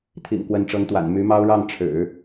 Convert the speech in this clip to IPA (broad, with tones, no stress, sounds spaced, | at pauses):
t̪ʰ ḭ˨˩ ŋ k w ə˧˥ n ʈ͡ʂ ɤ˧˥ ŋ t̪ w a̰˨˩ n m y˧˥ m ɑ˥ ʊ̯ ɻ ɑ˥˩ ŋ ʈ͡ʂʰ ɻ̩˨˩˦